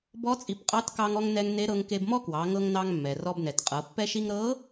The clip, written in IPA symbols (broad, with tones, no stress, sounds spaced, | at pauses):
b ɔ˧˥ t͡sʼ i˩˧ p qʼ ɑ˧˥ t k ɑ˧ ŋ ɔ˧ ŋ n ɛ˧ ŋ n e˧˥ ɾ ɤ˧ ŋ k e˧ b m ɔ˥ k w ɑ˩˧ ŋ ɤ˧ ŋ n ɑ˧ ŋ mː ɛ˩ r ɔ˧ b n ɛ˩ t qʼ ɤ˩˧ pː ɛ˧ ʃ i˧ ŋ ɾ ɤ˧˥